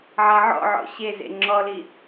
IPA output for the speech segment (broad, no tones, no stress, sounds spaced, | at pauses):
ʕ a ʕ ɔ̰ ʕ ɔ̰ ɕ e z ḛ ŋ͡ǁ ɔ l i